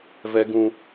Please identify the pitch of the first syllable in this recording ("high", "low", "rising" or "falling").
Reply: low